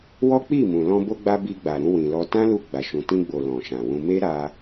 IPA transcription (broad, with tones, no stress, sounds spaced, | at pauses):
w ɔ˦ k͡p i˦˨ m ũ˨ l ɔ̃˧ b o˧ ɡ͡b a˧ b i˧ ɡ͡b a˨ ɾ ũ˧ w ĩ˨ l ɔ˧ t ã˦ l u˧ ɡ͡b a˨ ʃ ũ˨ t ĩ˧ ɡ͡b o˨ l ɔ̃˨ ʃ ã˨ w ũ˧ m e˦ ɾ a˧